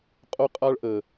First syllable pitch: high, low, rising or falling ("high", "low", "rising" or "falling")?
high